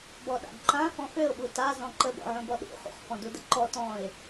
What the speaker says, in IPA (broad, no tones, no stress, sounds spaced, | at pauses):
b ɔ ɗ a̰ ɡ ǃ ã f ɔ̃ f ø ʊ̯ ɓ u t a z ɔ̃ ǃ ə b ɔ̰ ʕ ũ b ɔ ɗ ṵ χ ṵ χ f ɔ̃ d u d ə ǃ ɔ t ɔ̃ ɪ̯